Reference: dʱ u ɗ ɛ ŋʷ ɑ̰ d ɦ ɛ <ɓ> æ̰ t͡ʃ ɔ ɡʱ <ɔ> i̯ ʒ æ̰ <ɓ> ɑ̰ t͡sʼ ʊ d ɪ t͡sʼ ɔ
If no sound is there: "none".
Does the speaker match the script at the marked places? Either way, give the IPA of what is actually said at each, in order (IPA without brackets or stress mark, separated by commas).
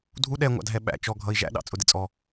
ɓ, ʌ, ɗ